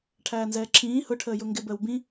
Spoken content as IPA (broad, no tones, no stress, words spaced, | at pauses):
ʈʰæːnzɛːǁʰĩː hʊ ʈʰəːjʊŋɡɪ bəːwbĩ